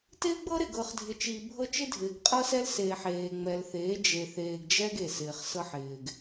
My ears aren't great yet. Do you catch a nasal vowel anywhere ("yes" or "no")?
no